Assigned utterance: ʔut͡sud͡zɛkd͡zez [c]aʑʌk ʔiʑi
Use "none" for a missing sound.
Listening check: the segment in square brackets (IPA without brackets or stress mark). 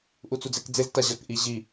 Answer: t